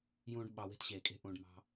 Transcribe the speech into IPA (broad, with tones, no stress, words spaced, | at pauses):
jũː˦ɖ ɓɑ˧we̤˦tɕeː˨kʼe̤˦ ʔũː˧ɖmɑ̤˦